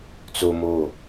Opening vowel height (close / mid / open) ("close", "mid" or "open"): mid